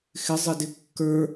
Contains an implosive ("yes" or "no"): no